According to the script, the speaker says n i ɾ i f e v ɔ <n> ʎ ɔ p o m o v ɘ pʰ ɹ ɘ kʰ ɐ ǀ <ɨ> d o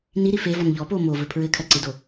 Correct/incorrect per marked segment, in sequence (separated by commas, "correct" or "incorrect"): correct, correct